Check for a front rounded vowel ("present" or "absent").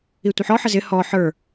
absent